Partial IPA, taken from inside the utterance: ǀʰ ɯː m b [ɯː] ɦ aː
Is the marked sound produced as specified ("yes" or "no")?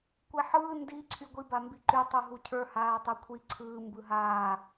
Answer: no